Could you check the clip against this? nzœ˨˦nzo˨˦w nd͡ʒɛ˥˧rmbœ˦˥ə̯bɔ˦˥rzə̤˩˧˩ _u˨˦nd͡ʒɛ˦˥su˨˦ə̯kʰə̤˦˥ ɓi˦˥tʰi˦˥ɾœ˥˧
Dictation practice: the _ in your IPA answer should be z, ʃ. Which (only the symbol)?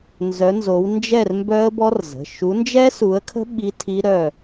ʃ